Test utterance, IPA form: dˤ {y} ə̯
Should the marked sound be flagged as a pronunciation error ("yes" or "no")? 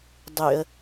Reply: no